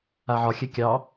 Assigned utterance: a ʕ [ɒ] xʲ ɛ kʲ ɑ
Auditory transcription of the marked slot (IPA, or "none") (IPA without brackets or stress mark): ɒ